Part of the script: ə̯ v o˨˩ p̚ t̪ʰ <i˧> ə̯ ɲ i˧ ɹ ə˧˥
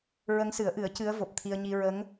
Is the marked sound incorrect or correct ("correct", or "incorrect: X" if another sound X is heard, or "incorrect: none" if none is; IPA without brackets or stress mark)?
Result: correct